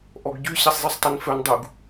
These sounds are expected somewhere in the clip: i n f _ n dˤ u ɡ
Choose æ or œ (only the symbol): œ